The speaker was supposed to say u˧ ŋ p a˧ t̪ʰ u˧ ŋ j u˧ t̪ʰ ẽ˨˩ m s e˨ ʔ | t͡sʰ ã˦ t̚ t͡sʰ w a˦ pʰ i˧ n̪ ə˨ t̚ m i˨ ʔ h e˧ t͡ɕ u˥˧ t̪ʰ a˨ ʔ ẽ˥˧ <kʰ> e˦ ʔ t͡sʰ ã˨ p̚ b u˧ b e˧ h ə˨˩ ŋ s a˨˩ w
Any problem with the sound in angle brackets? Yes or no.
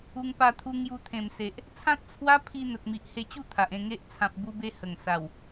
yes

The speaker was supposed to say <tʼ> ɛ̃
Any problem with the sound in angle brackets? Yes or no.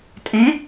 no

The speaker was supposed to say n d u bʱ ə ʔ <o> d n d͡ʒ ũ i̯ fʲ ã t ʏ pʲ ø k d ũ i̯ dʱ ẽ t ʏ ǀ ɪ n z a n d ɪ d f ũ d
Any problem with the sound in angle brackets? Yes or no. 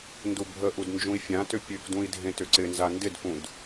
yes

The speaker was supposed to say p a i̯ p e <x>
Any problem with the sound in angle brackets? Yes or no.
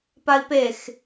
no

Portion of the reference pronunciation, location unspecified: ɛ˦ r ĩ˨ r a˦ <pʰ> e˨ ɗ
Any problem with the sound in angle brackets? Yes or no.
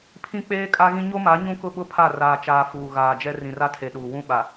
yes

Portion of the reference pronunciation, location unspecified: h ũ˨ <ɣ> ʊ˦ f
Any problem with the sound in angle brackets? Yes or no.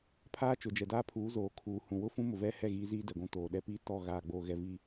yes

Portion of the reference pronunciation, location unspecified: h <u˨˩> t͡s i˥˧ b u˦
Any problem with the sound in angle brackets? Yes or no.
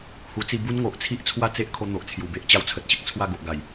yes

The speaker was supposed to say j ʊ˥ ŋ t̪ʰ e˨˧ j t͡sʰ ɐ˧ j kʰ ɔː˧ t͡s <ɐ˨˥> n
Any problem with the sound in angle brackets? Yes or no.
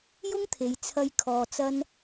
yes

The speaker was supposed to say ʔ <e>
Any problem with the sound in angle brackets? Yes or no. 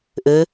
yes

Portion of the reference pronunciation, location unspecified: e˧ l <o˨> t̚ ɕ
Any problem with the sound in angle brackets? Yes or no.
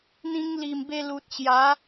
yes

